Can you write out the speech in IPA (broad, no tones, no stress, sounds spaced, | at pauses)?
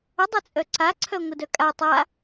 ə dˤ ɛ t͡sʼ œ ǀ a ǀʰ œ ŋʷ ɪ d œ kʼ a tˤ a